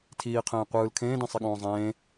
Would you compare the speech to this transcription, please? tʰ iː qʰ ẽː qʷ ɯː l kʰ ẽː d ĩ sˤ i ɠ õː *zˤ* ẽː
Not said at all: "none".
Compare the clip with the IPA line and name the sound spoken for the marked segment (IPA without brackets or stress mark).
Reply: zˤ